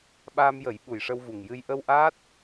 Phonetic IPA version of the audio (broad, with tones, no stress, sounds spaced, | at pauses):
ɓ aː˧ m j ə˨˩˦ j ɓ u˨˩ j ʂ ə˧ w v u˨˩ ŋ j ɨ˧ j ʔ ə˧ w ʔ aː˦˥ t̚